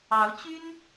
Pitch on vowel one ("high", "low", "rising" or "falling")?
rising